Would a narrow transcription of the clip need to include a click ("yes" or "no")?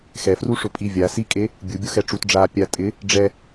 no